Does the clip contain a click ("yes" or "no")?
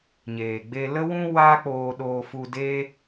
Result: no